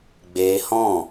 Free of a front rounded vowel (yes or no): yes